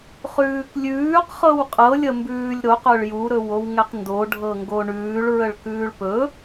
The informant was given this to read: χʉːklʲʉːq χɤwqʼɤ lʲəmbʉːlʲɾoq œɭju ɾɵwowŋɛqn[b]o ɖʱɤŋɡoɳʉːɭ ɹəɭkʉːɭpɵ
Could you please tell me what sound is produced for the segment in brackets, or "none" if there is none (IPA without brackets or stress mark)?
d